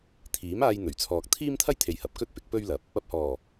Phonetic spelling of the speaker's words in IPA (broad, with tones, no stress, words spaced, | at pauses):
t̪ʰiː˨˥maː˧jn̪ɵ˨˩ɥt͡sʰɔː˨k̚ t̪ʰiː˥mt̪ʰɐ˥jt̪ʰe˨j hɐ˨p̚kɵ˥t̚pɪ˨˥k̚ pɵ˥ɥlɐ˨˥p̚ | ɐ˧p̚hɔː˨˩